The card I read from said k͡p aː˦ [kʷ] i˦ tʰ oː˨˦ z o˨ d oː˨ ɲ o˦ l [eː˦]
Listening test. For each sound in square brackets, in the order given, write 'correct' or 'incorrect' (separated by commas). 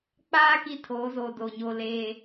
incorrect, correct